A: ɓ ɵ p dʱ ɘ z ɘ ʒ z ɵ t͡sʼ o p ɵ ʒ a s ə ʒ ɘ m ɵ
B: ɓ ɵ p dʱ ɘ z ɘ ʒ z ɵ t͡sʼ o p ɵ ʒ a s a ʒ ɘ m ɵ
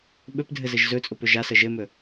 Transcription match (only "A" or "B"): A